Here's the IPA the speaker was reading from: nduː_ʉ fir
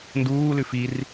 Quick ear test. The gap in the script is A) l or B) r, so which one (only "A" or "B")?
A